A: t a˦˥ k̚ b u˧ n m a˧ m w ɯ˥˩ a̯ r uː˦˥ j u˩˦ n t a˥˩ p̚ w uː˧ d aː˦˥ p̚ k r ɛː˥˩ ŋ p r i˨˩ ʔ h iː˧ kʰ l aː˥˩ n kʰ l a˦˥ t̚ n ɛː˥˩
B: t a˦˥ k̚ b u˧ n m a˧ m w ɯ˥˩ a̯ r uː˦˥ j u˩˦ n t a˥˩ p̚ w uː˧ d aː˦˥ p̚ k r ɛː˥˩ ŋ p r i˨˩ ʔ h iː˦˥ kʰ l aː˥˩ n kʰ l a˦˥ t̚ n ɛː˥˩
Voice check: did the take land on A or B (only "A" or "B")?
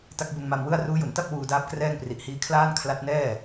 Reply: B